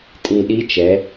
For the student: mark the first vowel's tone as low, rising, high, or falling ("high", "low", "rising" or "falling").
low